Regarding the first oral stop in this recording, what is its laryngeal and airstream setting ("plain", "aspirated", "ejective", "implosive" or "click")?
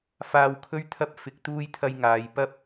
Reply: aspirated